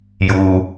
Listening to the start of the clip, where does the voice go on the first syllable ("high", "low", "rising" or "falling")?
low